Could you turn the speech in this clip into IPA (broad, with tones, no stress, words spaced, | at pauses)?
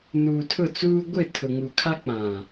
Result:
nuː˨tʰʊ˦˨t͡suː˦ ɡʷɪ˦˨tʰʊ˨ŋu˨kʰa˦ k͡pã˨